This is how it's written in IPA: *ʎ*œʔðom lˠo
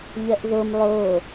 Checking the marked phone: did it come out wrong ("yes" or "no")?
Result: no